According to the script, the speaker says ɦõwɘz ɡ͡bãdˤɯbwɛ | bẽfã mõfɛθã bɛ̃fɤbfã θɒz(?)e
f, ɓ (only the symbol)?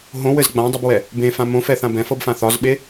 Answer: ɓ